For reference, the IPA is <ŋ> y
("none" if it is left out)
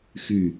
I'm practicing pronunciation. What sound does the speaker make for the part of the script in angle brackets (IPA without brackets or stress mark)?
x